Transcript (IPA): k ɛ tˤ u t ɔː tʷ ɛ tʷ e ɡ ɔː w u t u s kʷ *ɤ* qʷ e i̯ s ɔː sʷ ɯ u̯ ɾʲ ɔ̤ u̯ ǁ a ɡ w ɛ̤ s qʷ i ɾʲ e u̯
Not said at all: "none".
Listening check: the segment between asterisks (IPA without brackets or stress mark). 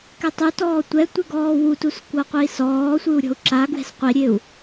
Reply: ɤ